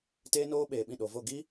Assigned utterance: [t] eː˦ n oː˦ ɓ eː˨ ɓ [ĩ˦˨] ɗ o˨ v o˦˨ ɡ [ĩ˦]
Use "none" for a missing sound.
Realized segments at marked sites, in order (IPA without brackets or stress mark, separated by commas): t, ĩ˦˨, i˦